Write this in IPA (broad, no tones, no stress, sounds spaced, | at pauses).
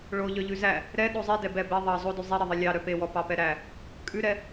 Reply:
ɭ o ʎ œ ʎ ʉ z æ | ɾ ɛ ɗ o zˤ i d ɛ b ɛ b e ðˤ ɑ zˤ o d ʉ zˤ i ɾ e ðˤ e lʲ ɑ ɾ œ p e w ɔ p ɑ p ɛ ɾ æ | kʼ ʉ ɾ ɛ